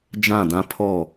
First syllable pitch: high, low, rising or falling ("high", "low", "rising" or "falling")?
falling